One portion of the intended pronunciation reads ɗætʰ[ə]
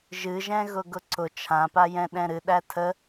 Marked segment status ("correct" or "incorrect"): correct